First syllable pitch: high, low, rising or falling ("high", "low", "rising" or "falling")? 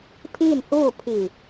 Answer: falling